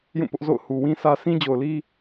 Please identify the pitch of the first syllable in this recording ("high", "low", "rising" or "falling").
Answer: falling